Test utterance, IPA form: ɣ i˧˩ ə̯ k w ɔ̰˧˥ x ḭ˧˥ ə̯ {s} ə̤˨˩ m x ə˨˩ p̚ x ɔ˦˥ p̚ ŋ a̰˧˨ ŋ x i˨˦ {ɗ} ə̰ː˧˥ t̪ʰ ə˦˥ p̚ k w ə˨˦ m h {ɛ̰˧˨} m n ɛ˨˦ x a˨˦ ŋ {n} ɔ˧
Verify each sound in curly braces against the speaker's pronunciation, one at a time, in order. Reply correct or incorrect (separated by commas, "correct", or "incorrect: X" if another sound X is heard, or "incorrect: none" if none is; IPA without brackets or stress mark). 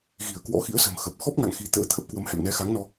correct, incorrect: t̪, correct, correct